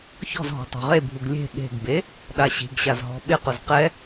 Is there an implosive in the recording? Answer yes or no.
yes